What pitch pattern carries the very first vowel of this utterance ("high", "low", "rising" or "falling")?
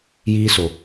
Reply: high